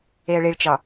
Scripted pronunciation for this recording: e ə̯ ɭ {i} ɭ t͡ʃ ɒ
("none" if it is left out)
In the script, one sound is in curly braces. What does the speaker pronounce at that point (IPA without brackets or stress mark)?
i